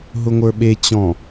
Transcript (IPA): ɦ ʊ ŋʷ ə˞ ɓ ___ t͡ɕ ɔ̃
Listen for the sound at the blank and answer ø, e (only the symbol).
e